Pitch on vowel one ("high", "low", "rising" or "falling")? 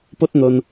high